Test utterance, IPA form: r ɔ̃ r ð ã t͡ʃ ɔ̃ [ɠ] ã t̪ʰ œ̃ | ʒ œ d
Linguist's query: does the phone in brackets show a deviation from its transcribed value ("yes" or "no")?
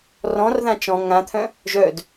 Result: yes